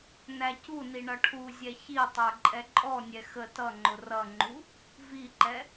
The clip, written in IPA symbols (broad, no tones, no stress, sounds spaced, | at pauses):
n æ c u n i ɳ ʌ ʈʰ u zʲ ɛ ç i tˤ ə˞ ǃʼ ɛ ǃʼ ɔ nʲ ɛ x ə t ʌ ŋ͡ǃ ʊ r ʌ ŋ͡ǃ u | v i ǃ ɛ